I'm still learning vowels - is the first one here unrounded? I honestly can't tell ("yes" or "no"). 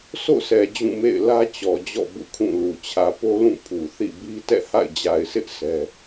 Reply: no